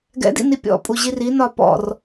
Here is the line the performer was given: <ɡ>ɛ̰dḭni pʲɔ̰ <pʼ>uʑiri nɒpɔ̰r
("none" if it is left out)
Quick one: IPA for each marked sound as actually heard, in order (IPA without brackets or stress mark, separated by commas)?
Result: ɡ, pʼ